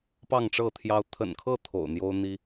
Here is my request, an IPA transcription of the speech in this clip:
p ɑ˥˨ ŋ ʈ͡ʂ ɤ˥˨ t̪ʰ j ɑ˦ ʊ̯ t̪ʰ ə̰˨˩ n kʰ ɤ˥˨ t̪ʰ o̰˨˩ ʊ̯ n̪ j o˦ ʊ̯ n̪ i˦

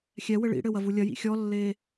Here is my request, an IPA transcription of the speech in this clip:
xʲ ɛ w ɘ ɭ ḭ ɽ ɘ w ɐ v u lʲ ɐ j ḭ xʲ ɔ lː eː

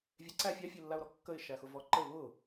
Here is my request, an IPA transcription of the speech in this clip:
vʲ e ǀ æ fʲ a fʲ e lː a ʊ̯ ɾ ɔ kː ə ɪ̯ ʃ æ x ʊ v ɔ ǃ ə ɪ̯ β ʊ

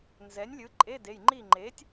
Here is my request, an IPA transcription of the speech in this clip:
n z ɛ˩˥ nʲ lʲ ɯ˩˥ ǃʼ e˧˥˧ d e˩˧˩ j ŋ͡ǃ i˥˨ ŋ͡ǃ e˩˥ tʲ

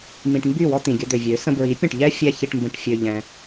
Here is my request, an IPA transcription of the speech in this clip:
m ĩ˨ ʈ m b y˦˨ w ɔ˧ t̪ ĩ˨ ɡʲ ə˧ d̪ ø˨ vʲ ø˨˦ s ə̃˧ b ɹ i˨˦ pʲ ə̃˦˨ ʈ ʎ ɛ˦ fʲ ɛ˦ ç i˧ ʈ m b ə̃˧ ʈ fʲ ø˧ ʎ ɛ̃˧

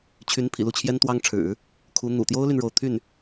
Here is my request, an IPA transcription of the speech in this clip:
t͡ɕʰ y˧˥ n pʰ ḭ˨˩ l u˥˩ t͡ɕʰ j ɛ˥ n t̪ w ɑ˥ ŋ ʈ͡ʂʰ ɻ̩˨˩˦ | kʰ u˧˥ n̪ ṵ˨˩ t̪ j o˥ ʊ̯ l y˨ n ɻ o˥˧ ʊ̯ t̪ʰ y˥˩ n

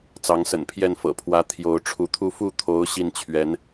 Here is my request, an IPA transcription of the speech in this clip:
t͡s ɑ˧˥ ŋ s ə̰˨˩ n pʰ j ɛ˥˩ n f ɤ̰˨˩ pʰ w ä˧˥ t̪ʰ j o˧˥ ʊ̯ ʈ͡ʂʰ u˧˥ t̪ʰ u˥˧ f u˥˩ t̪ʰ o˧˥ ʊ̯ ɕ i˥˩ n t͡ɕʰ ɥ ɛ˧˥ n

